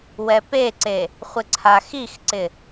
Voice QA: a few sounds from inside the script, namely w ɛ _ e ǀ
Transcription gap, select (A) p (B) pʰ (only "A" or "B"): A